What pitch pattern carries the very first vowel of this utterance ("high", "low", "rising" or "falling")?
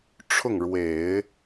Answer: falling